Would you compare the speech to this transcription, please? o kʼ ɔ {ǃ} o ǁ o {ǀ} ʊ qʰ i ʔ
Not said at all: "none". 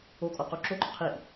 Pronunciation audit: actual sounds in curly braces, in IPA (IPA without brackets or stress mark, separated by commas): q, ǃ